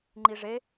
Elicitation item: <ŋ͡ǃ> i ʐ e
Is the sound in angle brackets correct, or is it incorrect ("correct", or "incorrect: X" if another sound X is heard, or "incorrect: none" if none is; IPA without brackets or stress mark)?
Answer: correct